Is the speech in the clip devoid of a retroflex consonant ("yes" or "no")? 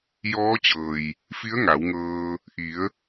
yes